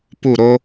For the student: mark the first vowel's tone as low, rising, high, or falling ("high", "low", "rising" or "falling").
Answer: falling